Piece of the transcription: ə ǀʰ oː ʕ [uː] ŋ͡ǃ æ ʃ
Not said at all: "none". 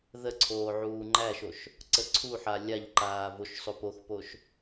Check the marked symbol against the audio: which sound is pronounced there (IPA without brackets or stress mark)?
uː